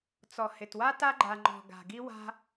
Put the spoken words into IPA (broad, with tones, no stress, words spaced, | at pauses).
t͡sɔ˨hɪ˨twa˦ ta˦ɡ͡ǃa˨ ŋ͡ǃɔ̤˨ ɡa̤˨ɡi˦ wa̤˦